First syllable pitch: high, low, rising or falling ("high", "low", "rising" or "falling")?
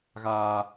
low